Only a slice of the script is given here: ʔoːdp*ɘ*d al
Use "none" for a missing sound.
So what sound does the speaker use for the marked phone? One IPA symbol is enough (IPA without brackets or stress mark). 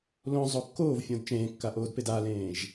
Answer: e